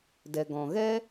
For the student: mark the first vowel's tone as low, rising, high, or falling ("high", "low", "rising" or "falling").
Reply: low